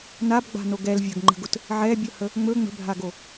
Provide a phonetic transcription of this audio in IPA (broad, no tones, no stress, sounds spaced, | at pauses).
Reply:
n a b ɡ͡b a̤ n o ɡ ɛ l vʲ ə ɡ ŋ͡ǃ ə̤ ɡ ʊ t | ʕ ɛ bʲ ɵ h ə | ŋ͡m ɵ ŋ͡m ə̤ bʱ a ɡ o